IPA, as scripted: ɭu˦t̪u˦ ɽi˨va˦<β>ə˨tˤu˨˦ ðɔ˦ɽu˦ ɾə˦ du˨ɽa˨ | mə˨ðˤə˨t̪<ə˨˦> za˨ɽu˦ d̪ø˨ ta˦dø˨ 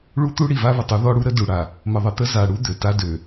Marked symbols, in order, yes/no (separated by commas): yes, no